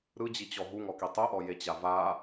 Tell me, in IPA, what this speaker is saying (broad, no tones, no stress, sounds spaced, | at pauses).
ɾ ɯ d͡ʑ i t͡ɕ ɔ ɦ u ŋ ɔ k i tˤ ɯ ʔ ɔ j e t͡ɕ a v a